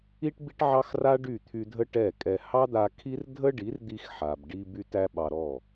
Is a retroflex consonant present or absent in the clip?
present